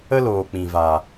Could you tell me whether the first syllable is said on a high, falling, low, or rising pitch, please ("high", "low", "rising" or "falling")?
high